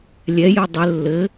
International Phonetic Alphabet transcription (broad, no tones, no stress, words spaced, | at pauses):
lʲɛjɘ dˤɘ lːɘ